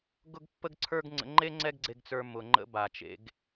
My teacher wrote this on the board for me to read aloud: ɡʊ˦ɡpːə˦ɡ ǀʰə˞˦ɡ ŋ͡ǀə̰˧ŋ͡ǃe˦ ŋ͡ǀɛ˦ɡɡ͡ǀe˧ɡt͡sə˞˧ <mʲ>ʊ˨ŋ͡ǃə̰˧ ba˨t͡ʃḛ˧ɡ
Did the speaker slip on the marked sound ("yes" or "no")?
yes